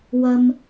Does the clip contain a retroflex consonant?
no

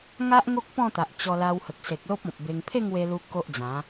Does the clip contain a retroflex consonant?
no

